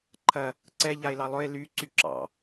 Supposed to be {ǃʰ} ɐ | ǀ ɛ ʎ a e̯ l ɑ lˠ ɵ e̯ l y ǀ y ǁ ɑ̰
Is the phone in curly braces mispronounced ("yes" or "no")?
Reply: no